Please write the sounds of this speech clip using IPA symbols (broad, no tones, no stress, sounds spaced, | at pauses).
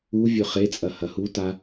u vʲ ɵ χ e t͡sʼ ɐ h ɐ h u t a